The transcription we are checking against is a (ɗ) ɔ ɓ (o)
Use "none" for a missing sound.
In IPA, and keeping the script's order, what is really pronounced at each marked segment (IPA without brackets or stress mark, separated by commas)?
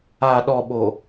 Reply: ɗ, o